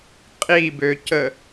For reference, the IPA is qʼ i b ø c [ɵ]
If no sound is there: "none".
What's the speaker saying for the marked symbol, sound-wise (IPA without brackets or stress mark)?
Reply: ə